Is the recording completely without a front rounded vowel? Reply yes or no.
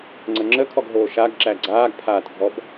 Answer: yes